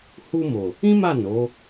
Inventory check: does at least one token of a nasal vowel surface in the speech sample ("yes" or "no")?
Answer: yes